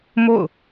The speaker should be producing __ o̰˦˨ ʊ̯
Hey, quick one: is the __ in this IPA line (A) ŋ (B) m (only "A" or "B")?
B